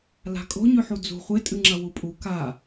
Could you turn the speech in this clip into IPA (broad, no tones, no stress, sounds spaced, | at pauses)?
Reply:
l a̤ kʼ o̤ ɲ ʉ ħ u d͡z ṳ χʷ e tʼ ɨ ŋ͡ǁ ɐ w u pʼ u k a